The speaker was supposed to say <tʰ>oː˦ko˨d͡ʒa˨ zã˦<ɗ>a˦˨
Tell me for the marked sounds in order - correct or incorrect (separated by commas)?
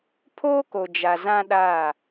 incorrect, correct